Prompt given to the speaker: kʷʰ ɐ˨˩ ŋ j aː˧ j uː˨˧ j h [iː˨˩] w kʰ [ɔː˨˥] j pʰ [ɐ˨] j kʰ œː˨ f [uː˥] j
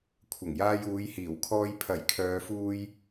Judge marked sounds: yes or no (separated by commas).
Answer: yes, no, no, no